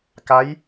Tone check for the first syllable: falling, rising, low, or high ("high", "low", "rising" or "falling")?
rising